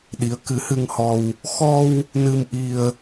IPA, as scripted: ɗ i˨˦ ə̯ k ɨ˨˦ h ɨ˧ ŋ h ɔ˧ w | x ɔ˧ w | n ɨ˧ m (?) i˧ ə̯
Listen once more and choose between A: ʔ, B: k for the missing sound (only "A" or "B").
A